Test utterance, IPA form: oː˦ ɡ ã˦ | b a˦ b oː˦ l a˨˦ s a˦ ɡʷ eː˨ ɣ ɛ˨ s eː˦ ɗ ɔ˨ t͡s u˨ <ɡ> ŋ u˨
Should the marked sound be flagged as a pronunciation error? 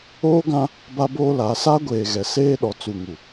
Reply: yes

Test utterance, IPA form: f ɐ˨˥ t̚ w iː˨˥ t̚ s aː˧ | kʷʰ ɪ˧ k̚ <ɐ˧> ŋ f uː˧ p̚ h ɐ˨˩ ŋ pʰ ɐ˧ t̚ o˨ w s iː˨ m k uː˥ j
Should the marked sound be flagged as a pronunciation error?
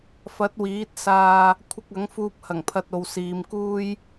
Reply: yes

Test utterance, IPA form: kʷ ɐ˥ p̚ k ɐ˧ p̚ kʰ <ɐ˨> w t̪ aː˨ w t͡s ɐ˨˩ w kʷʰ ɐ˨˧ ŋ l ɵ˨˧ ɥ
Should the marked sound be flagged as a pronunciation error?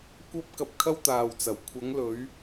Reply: yes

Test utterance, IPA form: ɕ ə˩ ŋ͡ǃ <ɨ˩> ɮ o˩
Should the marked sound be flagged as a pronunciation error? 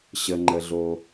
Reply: yes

